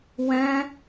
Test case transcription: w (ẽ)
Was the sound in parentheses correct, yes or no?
no